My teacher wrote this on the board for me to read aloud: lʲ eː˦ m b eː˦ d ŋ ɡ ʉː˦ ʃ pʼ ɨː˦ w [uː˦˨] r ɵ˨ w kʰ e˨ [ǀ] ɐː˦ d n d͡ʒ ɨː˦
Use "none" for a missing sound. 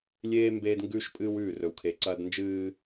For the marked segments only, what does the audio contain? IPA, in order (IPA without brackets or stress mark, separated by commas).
ʉː˦˨, ǀ